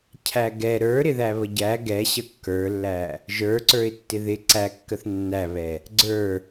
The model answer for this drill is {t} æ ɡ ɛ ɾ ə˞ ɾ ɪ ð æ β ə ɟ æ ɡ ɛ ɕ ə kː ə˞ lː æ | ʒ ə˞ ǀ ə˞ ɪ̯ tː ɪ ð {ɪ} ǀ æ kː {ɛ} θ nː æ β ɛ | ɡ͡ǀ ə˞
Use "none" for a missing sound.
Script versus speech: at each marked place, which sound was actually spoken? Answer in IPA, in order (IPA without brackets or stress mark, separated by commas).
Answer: cʰ, ɪ, ə